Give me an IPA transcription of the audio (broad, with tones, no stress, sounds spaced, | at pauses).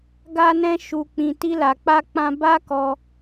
ɡ a˧ n ɛ̃˧ ʃ u˨ k͡p ĩ˨ t i˧ l a˨ k͡p a˧ k͡p ã˧ b a˦ k ɔ˧